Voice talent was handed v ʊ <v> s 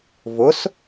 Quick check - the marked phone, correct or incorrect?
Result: incorrect